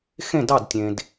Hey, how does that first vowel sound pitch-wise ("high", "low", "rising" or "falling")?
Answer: falling